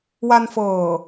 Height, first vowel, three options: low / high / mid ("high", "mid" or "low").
low